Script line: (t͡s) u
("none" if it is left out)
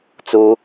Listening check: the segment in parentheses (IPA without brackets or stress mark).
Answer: t͡s